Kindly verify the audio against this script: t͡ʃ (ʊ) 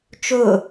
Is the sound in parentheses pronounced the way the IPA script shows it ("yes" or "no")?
yes